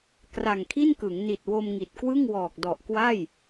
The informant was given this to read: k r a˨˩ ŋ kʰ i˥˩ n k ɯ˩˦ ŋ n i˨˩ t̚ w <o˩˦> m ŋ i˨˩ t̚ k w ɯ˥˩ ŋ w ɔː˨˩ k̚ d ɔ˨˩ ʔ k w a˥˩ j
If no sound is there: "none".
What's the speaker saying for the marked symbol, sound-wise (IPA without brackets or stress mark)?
o˧